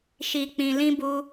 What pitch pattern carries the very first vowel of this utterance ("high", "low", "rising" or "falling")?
low